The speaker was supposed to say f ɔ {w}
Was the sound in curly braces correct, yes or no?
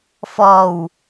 yes